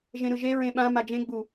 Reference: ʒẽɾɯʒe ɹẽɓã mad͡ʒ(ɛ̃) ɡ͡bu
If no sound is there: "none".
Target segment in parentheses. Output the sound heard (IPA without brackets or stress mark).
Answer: ẽ